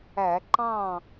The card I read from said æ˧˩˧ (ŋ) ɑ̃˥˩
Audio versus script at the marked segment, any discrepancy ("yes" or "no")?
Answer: yes